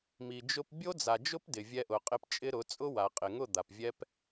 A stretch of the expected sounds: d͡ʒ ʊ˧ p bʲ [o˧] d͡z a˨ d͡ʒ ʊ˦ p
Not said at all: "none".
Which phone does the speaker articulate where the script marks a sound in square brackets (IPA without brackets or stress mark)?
o˦